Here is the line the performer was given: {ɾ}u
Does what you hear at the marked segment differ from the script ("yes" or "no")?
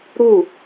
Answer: no